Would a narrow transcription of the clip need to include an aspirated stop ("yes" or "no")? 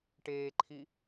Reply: yes